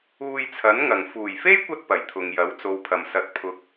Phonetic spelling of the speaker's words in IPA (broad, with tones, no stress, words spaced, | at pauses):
uː˧jt͡sʰɐ˨˥nŋɐ˨˩ŋ fuː˨˩jfe˥jkʷɐ˧t̚ pɐ˨˩jt̪ʰʊ˨ŋjɐ˨˥w t͡so˨˧wpʰɐ˨˩msɐ˨˥t̚ pʰʊ˨˥k̚